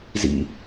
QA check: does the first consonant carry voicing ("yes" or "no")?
yes